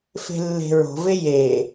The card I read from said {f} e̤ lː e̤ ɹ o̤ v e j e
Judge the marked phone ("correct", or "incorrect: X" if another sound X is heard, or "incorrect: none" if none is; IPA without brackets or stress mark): correct